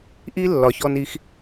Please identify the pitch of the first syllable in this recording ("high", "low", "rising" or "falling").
high